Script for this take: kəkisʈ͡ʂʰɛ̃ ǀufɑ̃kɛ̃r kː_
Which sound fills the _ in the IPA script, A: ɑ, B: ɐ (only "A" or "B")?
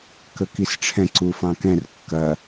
B